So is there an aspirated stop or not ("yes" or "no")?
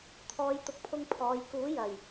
yes